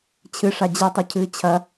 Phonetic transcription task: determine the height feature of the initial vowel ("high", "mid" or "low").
high